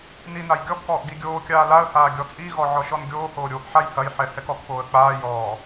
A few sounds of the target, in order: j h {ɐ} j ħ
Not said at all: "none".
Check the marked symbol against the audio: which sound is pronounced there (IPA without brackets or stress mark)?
ɐ